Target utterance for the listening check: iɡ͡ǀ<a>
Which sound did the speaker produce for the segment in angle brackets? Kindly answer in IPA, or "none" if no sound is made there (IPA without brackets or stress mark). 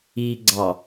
ɑ